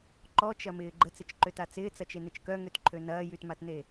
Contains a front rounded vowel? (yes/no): yes